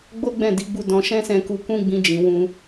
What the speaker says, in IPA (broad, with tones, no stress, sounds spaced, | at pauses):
ɡ͡b o˦ ɡ͡b ɛ̃˦˨ d i˨˦ ɡ͡b u˧ d ɔ̃˧ ʃ ɛ̃˦ s ɛ̃˧ k u˧ k ũ˦ ɡ͡b ĩ˧ d͡ʒ ĩ˨ w ũ˧